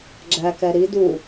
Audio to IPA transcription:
ɡ͡ǁækɛ ɾi du

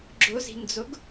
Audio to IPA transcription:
ɡ͡ǁʊzi̤nd͡zʊɡ

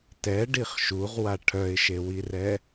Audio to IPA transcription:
tɛɖiχ ʃuʁwa ʈʰœɪ̯ʃewirɛ

